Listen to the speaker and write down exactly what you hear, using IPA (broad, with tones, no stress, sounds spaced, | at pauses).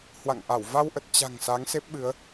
h w a̰˧˨ ŋ ʔ a˧˩ w v a˧ w ʔ ə˨˩ t̚ t͡ɕ a̤˨˩ ŋ s a˨˦ ŋ s e˦˥ p̚ ɓ ɨ˨˦ ə̯